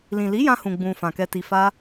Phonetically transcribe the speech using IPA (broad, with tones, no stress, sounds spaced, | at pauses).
l ĩ˨ l i˨˦ j ã˧ h ũ˨ ɡ͡b ũ˧ f ã˨ k ɛ˧ t i˧ f a˦